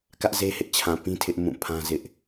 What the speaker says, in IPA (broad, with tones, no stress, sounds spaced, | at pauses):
k ä˦ ʔ z e˦ h ɪ˦ ʔ t͡ɕʰ ã˨ p ĩ˦ tʰ ɪ˦ ʔ m ũ˦˨ pʰ ã˦ z ɪ˦ ʔ